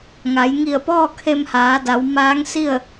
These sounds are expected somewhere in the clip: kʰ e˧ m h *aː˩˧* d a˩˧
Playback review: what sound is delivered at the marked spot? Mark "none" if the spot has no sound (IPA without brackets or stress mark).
aː˩˧